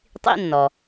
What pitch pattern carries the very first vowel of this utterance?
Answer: high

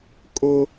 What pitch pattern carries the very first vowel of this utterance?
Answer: high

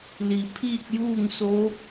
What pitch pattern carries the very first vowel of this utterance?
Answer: low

